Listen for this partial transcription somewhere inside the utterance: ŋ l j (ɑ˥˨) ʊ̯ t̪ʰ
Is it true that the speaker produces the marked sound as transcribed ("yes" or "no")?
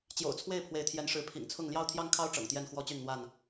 no